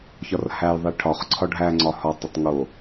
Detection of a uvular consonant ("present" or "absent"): present